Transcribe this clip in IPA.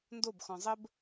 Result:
n d o b x ɔ̃ zˤ ə b

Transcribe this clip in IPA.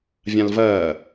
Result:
vʲ ã l v ɐː

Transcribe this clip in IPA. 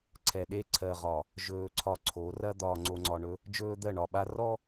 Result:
ǀʰ ɛ˨ ɗ e˦ ǀʰ ɜ˨ ʁ ɒ˨ | ʒ ɵː˨ ǀʰ ɒ˨ ǀʰ o˨˦ r ɐ˦ d̪ ɒː˨ ŋ͡ǀ o˨ ŋ͡ǀ ɒ˨ ɳ ɵ˦ | d͡ʒ ɵː˦ d̪ ɜ˦˨ ɳ ɒ˨ ɓ a˦ r ɔ˦

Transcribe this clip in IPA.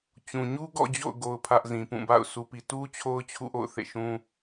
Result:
t͡ɕ ũ˨ ɲ u˦ ɡ ɔ̰˦˨ d͡ʑ o̰˦˨ ʊ̯ ɡ o˦ ʊ̯ pʰ ä˦ ʔ z ĩ˨ p ũ˦˨ b a̰˦˨ ʊ̯ sʰ u˨ p i˨ t u˦ t͡ɕʰ o˦ ʊ̯ t͡ɕʰ ṵ˦˨ ʔ o̰˦˨ ʊ̯ θ ḛ˦˨ ʃ ũ˦

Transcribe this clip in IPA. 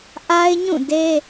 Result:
ʔ a˦ ɪ̯ ɲ ũ˦˨ d e˦

